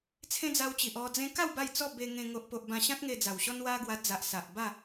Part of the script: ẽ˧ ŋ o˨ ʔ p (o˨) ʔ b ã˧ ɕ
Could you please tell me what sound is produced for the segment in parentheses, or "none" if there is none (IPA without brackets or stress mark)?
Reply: o˨